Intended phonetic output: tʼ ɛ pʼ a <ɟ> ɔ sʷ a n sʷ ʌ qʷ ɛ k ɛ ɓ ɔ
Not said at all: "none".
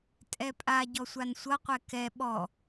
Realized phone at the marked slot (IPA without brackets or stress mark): ɟ